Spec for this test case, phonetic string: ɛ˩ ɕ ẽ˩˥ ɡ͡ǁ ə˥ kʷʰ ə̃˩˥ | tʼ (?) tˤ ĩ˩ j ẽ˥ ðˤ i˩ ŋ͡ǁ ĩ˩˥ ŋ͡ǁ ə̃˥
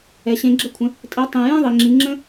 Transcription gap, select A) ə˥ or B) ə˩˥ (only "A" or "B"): B